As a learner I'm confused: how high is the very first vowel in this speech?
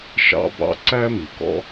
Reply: low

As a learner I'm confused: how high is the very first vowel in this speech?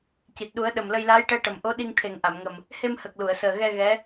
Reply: high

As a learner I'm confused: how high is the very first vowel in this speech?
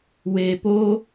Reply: mid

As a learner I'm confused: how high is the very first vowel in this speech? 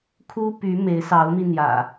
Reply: high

